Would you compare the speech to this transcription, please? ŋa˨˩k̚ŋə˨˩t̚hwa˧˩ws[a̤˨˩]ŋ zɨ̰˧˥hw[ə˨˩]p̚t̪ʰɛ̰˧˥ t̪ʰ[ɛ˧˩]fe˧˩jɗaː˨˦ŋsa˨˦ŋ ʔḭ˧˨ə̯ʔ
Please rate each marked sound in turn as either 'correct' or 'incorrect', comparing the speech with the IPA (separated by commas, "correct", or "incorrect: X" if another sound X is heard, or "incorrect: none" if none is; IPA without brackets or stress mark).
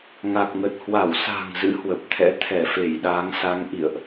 correct, correct, correct